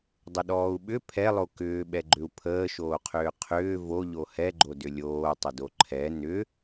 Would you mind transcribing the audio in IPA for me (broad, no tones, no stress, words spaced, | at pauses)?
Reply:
dˤəɗɔːu̯ɓʏ pʰɛlˠo kʏːɓɛɡ͡ǃʏu̯ pʰəːʃoːqʰʏː qʰʏː voʎo hɛɡ͡ǃo dʏlʲoːtˤədo ǃʰɛ nʏ